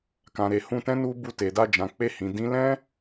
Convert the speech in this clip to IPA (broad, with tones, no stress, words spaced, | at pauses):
kã˨ɾe˨hũ˧tɛ̃˦ nu˧ bu˧te˨da˧d͡ʒã˨ k͡pe˧hĩ˨ dĩ˨˦lɛ̃˦